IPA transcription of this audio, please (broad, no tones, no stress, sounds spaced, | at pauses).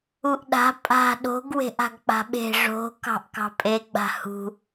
u ʔ ɗ a̤ pʼ a̤ ɗ o̤ ɡ w e̤ ʔ a̤ ɡ k͡p a̤ ɓ e̤ ʐ o̤ k ɑ̤ ʔ k ɑ̤ pʼ e ɡ͡b a̤ h ṳ